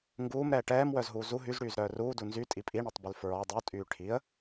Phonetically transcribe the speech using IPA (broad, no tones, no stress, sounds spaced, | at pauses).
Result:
ŋ ɡ uː m ɾ ɛː ʈ ɛː m w œ z ɦ uː z u ɦ y z ɽ yː z ɾ œː r uː d u n z y tʼ i pʼ i ɳ ɛ tˤ b y l f ɹ ɔ dˤ u tʼ yː ʈʰ i ə̯